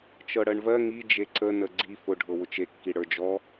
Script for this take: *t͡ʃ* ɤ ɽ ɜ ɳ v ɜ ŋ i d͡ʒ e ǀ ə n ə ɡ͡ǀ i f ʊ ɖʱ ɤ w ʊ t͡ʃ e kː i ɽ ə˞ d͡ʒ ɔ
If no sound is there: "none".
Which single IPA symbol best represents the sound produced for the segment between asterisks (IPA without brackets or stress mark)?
t͡ʃ